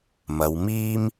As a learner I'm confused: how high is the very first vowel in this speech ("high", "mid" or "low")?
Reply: low